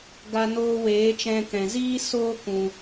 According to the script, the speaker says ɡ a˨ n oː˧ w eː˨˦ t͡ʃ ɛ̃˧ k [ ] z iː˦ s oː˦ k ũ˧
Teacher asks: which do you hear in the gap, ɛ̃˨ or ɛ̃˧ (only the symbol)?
ɛ̃˨